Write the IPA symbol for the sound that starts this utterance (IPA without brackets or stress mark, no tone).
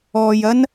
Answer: ɔː